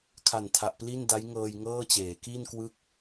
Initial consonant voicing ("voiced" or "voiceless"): voiceless